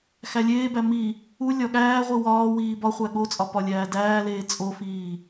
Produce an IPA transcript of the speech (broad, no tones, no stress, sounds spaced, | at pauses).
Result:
x æ lʲ eː b æ m i | u lʲ ɒ ɠ æː ʁʷ i w ɒː w iː b ɒ χʷ æ ɠ o t͡sʼ ɒ p ɒ lʲ æː d æː l eː t͡sʼ o f iː